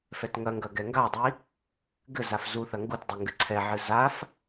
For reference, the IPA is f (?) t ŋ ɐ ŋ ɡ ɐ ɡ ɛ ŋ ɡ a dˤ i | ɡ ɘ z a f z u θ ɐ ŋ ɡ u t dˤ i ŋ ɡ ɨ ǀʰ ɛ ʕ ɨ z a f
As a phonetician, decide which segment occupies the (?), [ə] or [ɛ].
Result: ɛ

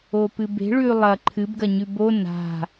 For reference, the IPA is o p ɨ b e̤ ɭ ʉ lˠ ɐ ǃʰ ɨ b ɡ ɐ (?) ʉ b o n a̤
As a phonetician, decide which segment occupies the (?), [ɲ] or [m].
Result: ɲ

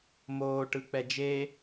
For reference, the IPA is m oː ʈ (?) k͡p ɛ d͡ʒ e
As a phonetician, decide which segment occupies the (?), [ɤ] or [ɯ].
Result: ɯ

